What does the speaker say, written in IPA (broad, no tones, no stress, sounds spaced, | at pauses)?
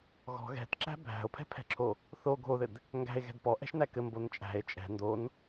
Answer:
ɣ ɔ̤ ɣ ɛ̤ t ǁ æ̤ bʱ æ̤ o̯ pʰ ɛ̤ pʰ ɛ̤ ǁʰ o | θ o ɡʱ o ð ɘ d | ŋ ɡ æ̤ e̯ ɣ ɛ̤ d p ɔ ʔ ɛ̤ ʃ n æ k ɘ m b o n t͡ʃʼ æ̤ e̯ t͡ʃʼ ɛ̤ n d o n